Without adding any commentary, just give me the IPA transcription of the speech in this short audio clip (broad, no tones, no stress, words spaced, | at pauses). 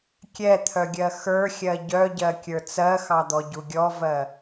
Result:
kʲɛt̪ʰœɡʲɜ xə˞xʲɜ ɟœɟɜ kʲə˞t͡sɜxɑd̪ɔ ɟuɡʲɔvɜ